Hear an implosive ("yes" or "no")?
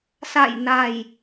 no